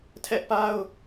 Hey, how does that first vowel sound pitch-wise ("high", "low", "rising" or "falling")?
high